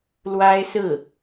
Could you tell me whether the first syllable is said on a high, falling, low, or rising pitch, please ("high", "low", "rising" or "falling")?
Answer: high